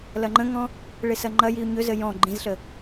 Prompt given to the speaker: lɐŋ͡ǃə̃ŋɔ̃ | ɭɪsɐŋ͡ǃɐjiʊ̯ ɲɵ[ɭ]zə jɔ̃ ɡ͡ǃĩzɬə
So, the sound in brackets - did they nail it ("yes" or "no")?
no